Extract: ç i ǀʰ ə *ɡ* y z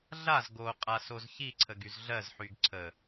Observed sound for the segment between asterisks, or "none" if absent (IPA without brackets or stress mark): ɡ